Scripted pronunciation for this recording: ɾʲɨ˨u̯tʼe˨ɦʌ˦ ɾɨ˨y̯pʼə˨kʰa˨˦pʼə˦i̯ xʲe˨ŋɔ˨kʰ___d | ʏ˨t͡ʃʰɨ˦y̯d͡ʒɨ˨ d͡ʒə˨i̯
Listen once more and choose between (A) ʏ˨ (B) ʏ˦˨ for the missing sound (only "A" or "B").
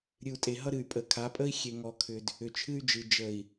A